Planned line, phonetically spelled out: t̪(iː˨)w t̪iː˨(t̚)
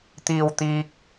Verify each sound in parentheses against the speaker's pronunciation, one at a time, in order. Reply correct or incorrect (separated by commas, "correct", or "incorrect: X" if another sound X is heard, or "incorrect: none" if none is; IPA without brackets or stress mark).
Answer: correct, incorrect: k̚